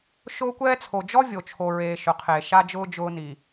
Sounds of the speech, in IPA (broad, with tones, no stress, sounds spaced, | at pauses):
ʃ ʊː˦ kʷ ɛː˦ t͡sʰ o˨ d͡ʒ ɔ˦ vʲ o˨ t͡ʃʰ o˨ ɹ eː˨ ʃ ʊ˨ qʰ e˨ ʃ a˦ d͡ʒ ʊː˦ d͡ʒ ʊː˦ n i˨